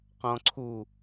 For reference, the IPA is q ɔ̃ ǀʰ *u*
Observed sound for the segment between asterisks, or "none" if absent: u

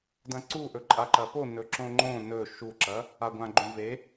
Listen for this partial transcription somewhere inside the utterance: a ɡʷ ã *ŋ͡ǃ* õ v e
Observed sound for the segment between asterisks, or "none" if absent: ɡ͡ǃ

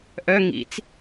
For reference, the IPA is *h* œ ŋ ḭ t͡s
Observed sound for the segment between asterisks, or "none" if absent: ʔ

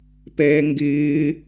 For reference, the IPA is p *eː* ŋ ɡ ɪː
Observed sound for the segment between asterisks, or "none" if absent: ɛː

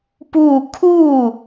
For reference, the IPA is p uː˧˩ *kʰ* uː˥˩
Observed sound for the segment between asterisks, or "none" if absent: kʰ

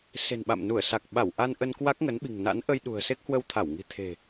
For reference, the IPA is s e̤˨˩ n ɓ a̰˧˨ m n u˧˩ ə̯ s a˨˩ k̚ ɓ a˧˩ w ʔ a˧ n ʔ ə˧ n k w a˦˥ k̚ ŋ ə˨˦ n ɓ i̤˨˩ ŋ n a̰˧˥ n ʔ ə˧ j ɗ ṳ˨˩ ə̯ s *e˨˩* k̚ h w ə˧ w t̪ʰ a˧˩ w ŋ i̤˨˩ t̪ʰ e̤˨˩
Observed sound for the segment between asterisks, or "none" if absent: e˦˥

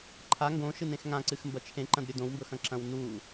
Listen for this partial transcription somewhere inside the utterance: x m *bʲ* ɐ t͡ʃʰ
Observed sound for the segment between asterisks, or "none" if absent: b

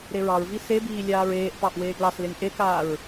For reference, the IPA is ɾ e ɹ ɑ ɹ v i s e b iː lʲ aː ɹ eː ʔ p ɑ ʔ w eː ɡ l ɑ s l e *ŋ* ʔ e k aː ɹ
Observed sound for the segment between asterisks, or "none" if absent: ŋ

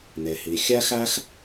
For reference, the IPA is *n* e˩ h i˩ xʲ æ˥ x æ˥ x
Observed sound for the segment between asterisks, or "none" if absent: n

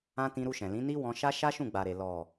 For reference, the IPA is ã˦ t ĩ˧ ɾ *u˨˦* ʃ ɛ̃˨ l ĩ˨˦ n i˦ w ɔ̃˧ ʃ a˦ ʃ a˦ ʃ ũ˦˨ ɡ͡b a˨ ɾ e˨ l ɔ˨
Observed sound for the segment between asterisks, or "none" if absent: u˧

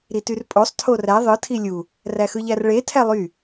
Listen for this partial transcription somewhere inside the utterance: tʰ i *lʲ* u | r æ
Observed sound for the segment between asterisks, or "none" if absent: lʲ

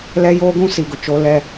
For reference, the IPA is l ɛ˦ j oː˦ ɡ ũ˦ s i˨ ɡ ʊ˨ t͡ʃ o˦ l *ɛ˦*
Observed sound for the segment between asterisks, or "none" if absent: ɛ˦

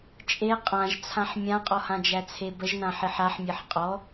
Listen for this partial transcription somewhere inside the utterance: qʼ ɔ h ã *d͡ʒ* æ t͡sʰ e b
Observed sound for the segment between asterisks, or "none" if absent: d͡ʒ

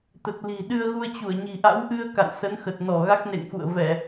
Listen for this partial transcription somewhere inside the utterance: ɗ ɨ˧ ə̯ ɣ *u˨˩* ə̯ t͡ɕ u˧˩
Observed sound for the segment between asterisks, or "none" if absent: u˧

